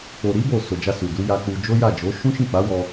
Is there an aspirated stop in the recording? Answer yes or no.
no